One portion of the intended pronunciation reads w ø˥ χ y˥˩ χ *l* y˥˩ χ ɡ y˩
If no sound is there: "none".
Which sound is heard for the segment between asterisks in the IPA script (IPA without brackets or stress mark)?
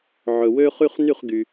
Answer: n